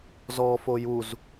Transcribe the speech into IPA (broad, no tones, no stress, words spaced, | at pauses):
zɔ fojuz